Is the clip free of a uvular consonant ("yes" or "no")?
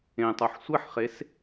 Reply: no